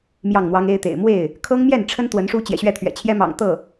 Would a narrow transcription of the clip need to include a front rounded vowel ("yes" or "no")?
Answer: no